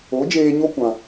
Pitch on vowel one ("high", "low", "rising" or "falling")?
rising